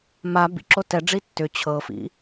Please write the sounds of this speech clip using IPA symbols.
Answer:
m a b ḭ ǁ o t ɛ ɖ͡ʐ i tː ʏ t͡ɕʰ ɤ f ḭ

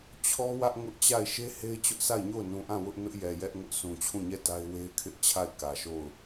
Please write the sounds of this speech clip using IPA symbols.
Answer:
t͡ɕʰ ɔ˦ w ä˦ ʔ ŋ ʊ˦ ʔ t͡ɕ a˦˨ ɪ̯ ʃ e˦ h e˦ ɪ̯ t͡ɕ ʊ˦ ʔ s a˦˨ ɪ̯ ɲ o˦˨ ʊ̯ n ũ˨ ʔ ã˦˨ w ʊ˦ ʔ n ʊ˦ ʔ j ɛ˨ j ɛ˦ ʔ ŋ ʊ˦ ʔ sʰ ũ˨ t͡ɕʰ ũ˦˨ ɲ ɛ˦˨ t a˦ ɪ̯ w e˦ ɪ̯ kʰ ɪ˦ ʔ t͡ɕʰ a˦˨ ɪ̯ k ä˨ ʃ o˦˨ ʊ̯

